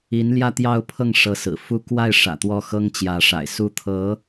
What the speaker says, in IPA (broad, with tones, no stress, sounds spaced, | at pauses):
i˧˥ n l j ä˥˧ t̪ j ɑ˥˧ ʊ̯ pʰ ɤ˥˩ ŋ ʂ ɤ˧˥ s ɹ̩˨˩ f u˥˧ k w a˥˩ ɪ̯ ʂ ä̰˨˩ t̪ w ɔ˥˩ x ɤ˥ ŋ t͡ɕ j ä˧˥ ʂ a̰˨˩ ɪ̯ s u˥ t̪ʰ ɤ˧˥